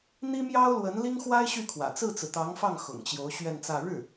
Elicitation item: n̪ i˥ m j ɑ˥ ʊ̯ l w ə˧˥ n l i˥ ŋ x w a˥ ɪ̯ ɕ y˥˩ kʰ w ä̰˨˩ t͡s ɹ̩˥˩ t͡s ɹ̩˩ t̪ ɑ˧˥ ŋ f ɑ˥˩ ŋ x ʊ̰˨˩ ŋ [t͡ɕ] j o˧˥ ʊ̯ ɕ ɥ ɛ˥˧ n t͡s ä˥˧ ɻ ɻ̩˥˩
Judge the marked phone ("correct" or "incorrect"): correct